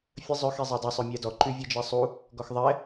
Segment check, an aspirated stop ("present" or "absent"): absent